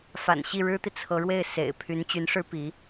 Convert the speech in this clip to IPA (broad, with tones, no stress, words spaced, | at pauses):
fa̰˨˩nɕi˥˩ɻɻ̩˥t̪i˨ t͡sʰɤ˧˥ɻwe˥˩ɪ̯sḛ˨˩ɪ̯ pʰy˧˥nt͡ɕy˧˥nʂɻ̩˥ pi˧˥